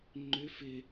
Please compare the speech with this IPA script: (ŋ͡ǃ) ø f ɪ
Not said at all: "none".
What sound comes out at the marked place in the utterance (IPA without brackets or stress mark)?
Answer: ŋ͡ǃ